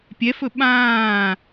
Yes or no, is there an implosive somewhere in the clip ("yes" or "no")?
yes